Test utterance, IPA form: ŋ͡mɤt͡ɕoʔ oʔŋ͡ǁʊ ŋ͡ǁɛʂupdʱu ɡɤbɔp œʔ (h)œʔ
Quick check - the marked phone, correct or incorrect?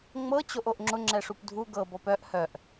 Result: correct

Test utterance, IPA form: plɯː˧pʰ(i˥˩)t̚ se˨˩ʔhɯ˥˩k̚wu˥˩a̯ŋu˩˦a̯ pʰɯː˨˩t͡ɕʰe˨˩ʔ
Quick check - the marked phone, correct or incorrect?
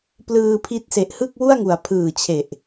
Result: incorrect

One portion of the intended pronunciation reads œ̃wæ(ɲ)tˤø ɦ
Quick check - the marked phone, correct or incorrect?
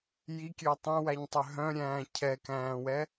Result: correct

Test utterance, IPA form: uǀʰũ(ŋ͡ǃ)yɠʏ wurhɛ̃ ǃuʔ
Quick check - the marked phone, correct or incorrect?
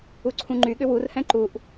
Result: correct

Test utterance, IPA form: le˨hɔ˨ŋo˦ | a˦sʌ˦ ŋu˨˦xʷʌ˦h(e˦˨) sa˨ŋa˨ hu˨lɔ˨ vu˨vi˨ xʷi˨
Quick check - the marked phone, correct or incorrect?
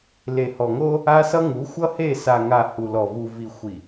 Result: correct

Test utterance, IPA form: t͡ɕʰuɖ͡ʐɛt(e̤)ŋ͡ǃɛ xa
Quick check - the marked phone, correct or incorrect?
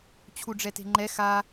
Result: correct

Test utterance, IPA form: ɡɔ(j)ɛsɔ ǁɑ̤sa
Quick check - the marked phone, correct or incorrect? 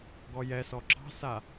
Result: correct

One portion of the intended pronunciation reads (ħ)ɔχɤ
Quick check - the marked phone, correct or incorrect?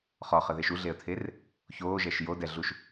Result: incorrect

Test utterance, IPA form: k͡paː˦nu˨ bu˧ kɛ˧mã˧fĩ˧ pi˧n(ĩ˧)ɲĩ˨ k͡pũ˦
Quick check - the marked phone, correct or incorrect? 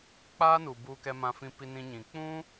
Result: correct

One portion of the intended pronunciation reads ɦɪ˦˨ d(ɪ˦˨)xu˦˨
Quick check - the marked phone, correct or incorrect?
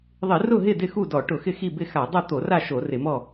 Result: correct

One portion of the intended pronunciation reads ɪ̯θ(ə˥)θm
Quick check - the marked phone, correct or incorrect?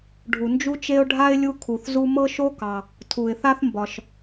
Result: incorrect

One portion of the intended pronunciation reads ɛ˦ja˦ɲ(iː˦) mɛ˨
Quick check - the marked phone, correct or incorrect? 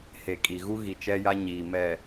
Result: incorrect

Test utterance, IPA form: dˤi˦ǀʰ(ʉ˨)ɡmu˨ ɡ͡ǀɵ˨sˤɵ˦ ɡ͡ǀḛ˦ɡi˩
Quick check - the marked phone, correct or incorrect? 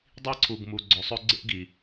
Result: incorrect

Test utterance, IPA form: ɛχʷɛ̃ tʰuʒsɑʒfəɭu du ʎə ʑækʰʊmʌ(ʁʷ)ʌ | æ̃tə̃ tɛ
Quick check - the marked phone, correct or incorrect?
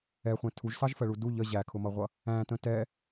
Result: correct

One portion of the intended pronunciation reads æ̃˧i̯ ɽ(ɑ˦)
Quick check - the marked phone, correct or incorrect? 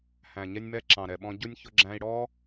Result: incorrect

